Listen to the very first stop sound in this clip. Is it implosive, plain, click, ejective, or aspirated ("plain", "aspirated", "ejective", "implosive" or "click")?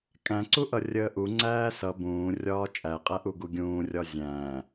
ejective